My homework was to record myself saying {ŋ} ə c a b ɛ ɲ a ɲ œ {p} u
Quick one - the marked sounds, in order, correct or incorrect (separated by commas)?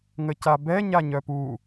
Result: correct, correct